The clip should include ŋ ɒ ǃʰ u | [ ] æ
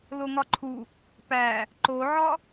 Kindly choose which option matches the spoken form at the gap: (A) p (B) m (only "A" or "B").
A